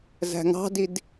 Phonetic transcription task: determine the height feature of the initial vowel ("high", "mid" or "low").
low